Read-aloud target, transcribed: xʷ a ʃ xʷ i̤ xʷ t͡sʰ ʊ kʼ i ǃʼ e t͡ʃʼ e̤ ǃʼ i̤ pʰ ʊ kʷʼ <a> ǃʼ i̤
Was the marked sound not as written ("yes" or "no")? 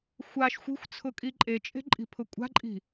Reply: yes